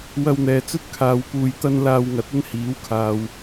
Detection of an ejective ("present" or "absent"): absent